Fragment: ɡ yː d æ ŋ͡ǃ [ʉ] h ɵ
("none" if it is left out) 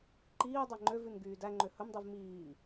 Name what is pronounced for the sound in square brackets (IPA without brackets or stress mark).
ø